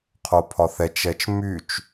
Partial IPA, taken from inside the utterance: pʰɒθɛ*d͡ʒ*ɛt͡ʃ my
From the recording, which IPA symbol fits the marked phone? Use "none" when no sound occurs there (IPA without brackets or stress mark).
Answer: t͡ʃ